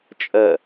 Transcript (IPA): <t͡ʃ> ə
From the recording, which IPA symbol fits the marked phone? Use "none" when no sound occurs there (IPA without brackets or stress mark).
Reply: t͡ʃʼ